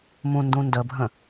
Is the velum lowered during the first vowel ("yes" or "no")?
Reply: yes